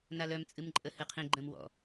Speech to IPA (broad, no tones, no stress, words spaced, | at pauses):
nalœm t͡sʼɨmǃʼəhɨqʰĩ ɡ͡ǃə̃mwɔ̰